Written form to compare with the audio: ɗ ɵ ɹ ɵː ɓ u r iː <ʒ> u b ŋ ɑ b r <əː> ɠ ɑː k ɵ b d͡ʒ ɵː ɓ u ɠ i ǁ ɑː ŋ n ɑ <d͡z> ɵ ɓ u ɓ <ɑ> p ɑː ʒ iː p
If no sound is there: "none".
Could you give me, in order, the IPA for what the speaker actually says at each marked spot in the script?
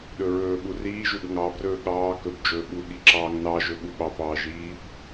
ʒ, ɵː, ʒ, ɑ

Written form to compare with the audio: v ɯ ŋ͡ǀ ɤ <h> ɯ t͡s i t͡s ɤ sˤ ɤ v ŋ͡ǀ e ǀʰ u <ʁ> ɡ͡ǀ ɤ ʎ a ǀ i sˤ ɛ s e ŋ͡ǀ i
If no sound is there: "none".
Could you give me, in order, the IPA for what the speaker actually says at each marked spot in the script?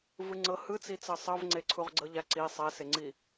h, ʁ

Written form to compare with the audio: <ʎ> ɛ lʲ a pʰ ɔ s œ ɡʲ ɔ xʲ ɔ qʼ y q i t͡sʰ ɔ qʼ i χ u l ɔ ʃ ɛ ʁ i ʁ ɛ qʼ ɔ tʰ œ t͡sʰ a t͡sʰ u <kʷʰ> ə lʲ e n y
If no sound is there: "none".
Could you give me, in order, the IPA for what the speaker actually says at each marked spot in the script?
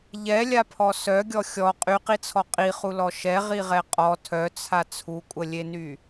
ʎ, kʷʼ

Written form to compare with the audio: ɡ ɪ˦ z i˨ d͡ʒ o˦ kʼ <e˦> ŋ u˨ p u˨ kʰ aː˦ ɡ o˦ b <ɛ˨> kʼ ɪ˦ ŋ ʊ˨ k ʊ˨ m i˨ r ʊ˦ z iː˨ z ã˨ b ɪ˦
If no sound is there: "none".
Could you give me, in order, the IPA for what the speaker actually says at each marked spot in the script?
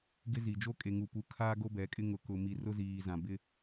e˨, ɛ˨˦

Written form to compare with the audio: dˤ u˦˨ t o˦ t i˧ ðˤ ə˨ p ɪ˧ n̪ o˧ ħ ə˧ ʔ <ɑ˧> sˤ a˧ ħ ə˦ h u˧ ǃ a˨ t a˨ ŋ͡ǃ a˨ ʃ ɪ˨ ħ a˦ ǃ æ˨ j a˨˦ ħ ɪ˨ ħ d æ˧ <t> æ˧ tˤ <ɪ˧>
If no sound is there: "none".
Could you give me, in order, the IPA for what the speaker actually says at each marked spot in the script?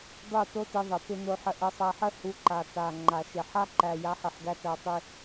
ə˧, t, i˧

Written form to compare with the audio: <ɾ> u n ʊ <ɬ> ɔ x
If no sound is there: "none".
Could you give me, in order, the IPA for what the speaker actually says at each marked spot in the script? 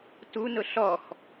t, ɬ

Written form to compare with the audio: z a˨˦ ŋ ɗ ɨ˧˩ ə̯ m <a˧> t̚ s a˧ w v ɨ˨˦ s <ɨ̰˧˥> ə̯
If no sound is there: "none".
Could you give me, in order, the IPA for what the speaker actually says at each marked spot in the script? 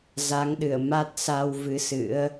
a˦˥, ɨ̰˧˥

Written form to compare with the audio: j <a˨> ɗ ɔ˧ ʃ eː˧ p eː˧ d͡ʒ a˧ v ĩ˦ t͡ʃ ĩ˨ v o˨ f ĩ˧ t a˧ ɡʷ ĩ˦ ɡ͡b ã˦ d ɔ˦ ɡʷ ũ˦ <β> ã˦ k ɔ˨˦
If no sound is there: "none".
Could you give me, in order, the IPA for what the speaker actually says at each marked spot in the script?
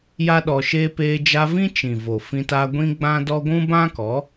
a˦, b

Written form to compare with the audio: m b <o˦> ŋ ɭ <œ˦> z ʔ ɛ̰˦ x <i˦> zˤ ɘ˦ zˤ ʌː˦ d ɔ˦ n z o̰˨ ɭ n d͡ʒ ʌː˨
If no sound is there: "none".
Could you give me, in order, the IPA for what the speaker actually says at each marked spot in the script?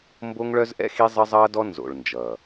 o˦, œ˦, i˦

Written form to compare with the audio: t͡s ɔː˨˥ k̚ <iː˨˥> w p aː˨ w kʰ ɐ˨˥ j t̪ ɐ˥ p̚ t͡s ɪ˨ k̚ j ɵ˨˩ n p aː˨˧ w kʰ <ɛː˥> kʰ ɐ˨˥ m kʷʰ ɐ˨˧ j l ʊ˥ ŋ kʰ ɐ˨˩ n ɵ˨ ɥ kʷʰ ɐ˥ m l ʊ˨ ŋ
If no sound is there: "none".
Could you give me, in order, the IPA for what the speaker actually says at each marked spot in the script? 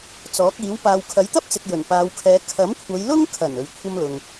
iː˨˥, ɛː˨˧

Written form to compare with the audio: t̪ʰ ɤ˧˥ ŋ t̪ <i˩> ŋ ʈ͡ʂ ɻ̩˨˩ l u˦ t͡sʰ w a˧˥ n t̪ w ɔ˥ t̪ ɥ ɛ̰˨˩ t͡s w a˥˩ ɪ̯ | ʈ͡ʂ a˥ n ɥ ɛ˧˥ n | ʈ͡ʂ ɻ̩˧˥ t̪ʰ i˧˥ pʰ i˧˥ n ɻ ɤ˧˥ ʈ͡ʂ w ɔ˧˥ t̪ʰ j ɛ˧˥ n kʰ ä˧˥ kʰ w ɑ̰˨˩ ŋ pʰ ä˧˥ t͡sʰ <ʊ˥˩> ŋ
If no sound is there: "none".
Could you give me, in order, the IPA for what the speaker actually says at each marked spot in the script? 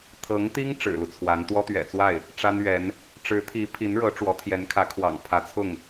i˥, ʊ˥˩

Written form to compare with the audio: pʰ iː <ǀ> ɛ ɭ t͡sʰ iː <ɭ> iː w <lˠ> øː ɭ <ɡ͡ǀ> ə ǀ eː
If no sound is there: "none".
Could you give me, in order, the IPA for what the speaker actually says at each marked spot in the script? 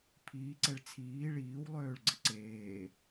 ǀ, ɭ, lˠ, ɡ͡ǀ

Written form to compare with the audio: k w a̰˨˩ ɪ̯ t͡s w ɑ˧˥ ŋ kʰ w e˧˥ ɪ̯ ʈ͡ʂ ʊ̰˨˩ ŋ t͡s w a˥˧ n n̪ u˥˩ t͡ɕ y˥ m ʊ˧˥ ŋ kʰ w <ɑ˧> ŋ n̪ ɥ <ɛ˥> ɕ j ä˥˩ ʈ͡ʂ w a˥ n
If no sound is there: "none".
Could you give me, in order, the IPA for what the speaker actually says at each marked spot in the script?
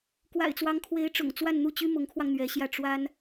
ɑ˧, ɛ˧˥

